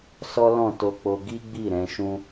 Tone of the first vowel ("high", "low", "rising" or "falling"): high